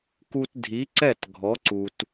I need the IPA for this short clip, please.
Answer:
k u˧ t dʱ i˩˥ ǀ ɛ˥˩ t ɡʱ ɔ˩˥ ǀ u˩ t

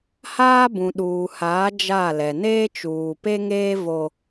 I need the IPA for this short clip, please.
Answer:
h aː˦ b ũ˨ ɗ uː˨ h aː˨˦ d͡ʒ a˦˨ l ɛ˨ n eː˦ t͡ʃ uː˨ p e˦ ŋ eː˦ v o˦

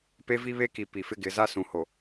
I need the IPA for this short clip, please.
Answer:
p e˦ v i˦ β e˦ k i˨ p i˨ f ɪ˦ ɡ ɪ˨˦ z a˦ s ũ˨ h o˨

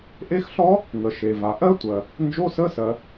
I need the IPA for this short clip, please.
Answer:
ʔ e˦˥ x ɬ ɔ˦˥ | ŋ ə˩ ʃ e˩ v a˩ ʔ ɜ˦˥ tʷ ɜ˩ | n d͡ʒ o˧˥˧ s ə˧˥˧ s ɜ˩

